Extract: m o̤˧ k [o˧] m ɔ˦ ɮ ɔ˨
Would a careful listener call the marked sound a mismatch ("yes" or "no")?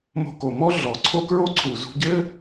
yes